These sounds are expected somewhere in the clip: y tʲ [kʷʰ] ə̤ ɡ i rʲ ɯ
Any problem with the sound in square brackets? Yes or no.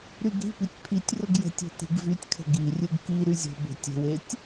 yes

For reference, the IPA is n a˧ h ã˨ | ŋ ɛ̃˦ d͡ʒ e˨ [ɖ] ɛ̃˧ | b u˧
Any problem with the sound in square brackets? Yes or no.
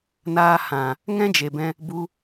yes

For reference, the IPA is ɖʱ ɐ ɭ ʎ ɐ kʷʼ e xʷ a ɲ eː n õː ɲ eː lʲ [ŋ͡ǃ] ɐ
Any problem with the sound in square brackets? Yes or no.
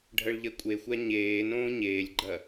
yes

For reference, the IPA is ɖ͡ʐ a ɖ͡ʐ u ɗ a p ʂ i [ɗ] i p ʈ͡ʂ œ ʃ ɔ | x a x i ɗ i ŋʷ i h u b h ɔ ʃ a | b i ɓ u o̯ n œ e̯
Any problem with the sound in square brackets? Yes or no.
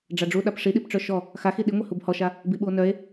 no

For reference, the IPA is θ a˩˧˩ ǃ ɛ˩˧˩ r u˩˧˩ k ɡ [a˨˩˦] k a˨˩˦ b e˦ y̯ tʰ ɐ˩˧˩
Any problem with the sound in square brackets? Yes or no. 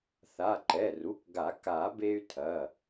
no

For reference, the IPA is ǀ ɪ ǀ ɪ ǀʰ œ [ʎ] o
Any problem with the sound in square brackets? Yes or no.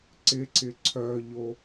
no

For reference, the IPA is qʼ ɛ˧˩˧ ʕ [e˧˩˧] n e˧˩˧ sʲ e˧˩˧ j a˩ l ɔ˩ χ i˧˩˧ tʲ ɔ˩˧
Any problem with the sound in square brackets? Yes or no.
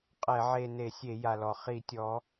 yes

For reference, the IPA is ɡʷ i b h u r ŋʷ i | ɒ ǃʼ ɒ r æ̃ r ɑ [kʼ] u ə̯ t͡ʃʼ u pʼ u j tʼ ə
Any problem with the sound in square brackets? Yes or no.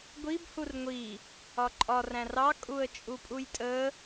no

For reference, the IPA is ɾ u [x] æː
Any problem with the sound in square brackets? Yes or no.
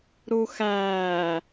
no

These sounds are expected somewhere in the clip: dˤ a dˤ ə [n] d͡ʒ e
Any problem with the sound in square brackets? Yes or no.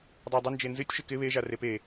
no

